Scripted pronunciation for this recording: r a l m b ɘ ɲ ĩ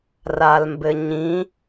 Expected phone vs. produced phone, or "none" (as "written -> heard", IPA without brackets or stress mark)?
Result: none